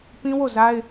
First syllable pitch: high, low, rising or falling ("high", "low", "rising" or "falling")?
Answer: high